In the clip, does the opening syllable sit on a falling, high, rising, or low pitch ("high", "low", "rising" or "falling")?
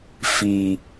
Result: low